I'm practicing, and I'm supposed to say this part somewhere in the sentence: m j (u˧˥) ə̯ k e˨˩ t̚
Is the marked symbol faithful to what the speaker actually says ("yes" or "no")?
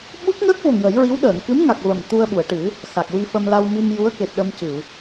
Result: yes